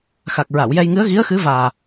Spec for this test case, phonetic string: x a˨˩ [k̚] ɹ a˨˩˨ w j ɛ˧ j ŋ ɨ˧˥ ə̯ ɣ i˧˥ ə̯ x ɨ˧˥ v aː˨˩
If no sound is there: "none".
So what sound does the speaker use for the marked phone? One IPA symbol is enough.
k̚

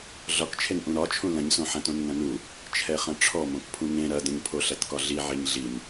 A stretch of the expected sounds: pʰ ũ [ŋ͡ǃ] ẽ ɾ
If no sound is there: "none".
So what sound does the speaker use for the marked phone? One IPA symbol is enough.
ŋ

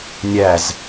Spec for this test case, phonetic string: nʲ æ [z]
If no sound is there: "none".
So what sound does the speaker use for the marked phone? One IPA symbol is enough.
z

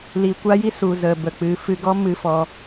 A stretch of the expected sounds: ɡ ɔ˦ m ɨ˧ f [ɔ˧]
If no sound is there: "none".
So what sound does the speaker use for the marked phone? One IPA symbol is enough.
ɔ˧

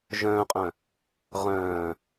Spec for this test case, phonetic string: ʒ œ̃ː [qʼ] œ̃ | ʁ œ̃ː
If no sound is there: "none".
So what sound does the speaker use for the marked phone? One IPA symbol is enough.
qʼ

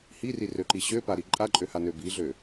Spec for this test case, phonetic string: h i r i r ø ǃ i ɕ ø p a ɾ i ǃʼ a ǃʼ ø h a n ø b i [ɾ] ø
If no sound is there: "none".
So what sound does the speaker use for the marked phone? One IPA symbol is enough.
ɮ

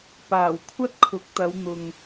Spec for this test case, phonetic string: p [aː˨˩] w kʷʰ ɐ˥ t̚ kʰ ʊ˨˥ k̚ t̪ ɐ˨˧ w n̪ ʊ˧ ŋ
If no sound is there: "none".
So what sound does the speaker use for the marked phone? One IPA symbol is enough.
aː˨˩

